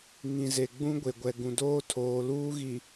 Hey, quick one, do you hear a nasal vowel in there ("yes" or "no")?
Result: yes